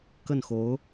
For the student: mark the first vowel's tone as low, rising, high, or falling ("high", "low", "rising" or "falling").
falling